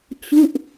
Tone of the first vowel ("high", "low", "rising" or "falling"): falling